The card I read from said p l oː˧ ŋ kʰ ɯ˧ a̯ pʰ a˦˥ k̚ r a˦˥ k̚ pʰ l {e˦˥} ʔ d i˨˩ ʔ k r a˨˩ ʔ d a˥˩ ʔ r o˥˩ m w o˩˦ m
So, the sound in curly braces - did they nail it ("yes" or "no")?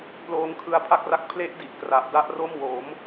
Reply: yes